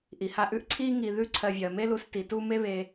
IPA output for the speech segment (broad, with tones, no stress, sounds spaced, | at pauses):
ʔ i˩ h a˦ ʔ ʉ˥ ʔ ǀʰ i˥ ŋ i˨ ð ʉ˥ ǀʰ ɜ˨ vʲ ɜ˩ m e˥ l u˨ s t i˩ t u˥ m e˥ β e˨